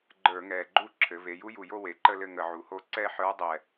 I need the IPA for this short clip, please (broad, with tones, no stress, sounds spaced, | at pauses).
ɡ͡ǃ ə˞˧˩˧ ŋ ɛː˨˩ ɡ͡ǃ u˥˨ ǁʰ ɘ˩˧ v e˩˧ j u˧˥ j u˨˩ j o˥˨ w e˩˧ ǃ ə˥˨ l ɘ˥˨ ŋ ə˧˩˧ ʕ u˨˩ h o˥˨ ǀ ɛ˥˨ ħ ə˞˧˥ dˤ ɛ˨˩